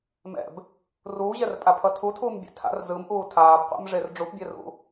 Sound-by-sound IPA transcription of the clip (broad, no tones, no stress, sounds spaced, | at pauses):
m ɛ̰ b | r uː ʑ ɛ r pʼ a pʰ ʌ tʰ u tʰ uː m bʲ ɛ̰ tʰ a̰ r z ɯ m ʔ uː tʰ aː b qʷ a̰ m ʐ e r ɖ͡ʐ u p bʲ ɛ r ṵ